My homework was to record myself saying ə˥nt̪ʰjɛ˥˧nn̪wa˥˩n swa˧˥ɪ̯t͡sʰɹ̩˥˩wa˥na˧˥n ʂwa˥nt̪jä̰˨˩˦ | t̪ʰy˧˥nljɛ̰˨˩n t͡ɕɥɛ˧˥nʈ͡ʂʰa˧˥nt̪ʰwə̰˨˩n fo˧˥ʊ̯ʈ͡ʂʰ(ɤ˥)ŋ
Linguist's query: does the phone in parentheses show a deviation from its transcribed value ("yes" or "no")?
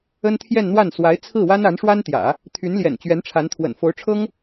no